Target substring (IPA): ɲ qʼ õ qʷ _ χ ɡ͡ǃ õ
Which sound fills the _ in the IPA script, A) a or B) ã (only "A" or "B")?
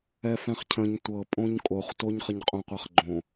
A